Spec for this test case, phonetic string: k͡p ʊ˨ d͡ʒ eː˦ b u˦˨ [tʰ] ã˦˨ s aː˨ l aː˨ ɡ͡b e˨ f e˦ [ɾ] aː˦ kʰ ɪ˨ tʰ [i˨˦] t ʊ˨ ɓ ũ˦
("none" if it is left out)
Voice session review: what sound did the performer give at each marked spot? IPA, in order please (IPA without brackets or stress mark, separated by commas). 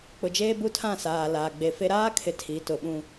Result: tʰ, ɾ, i˨˦